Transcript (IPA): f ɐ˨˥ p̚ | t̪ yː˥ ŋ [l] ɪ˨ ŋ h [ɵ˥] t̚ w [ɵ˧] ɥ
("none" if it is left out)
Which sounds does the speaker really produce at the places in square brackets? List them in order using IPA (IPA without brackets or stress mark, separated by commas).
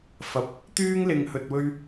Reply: l, ɵ˨, ɵ˧